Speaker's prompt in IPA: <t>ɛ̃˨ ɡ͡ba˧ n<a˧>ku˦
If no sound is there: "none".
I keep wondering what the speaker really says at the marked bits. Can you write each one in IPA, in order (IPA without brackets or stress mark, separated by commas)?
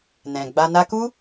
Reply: n, a˧